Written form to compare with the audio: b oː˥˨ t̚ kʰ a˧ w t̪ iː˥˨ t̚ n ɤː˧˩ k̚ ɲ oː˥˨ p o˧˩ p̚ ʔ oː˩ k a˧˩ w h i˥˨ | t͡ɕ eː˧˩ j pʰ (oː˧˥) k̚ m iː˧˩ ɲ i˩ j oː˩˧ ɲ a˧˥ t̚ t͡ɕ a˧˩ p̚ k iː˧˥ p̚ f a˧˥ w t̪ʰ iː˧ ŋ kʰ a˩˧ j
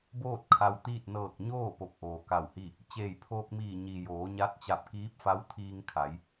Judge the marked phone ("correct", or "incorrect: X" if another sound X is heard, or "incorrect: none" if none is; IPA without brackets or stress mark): incorrect: oː˧